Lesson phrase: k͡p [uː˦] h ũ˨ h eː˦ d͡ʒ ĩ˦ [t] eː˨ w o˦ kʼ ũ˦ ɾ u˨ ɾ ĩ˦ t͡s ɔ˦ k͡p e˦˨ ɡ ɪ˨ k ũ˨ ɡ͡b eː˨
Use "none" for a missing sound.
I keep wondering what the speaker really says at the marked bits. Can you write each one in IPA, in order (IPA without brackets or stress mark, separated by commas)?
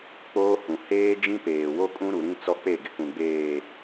oː˦, p